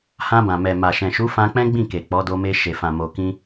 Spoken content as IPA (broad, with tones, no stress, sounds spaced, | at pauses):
h ã˧ b ã˨ m ɛ˨ m a˨ ʃ ɛ̃˨ ʃ u˨˦ f ã˧ k͡p ɛ̃˦ ɡ͡b ĩ˦˨ k e˨ k͡p ɔ˨˦ d o˧ m e˧ ʃ e˨ f ã˨ m o˨ k ĩ˧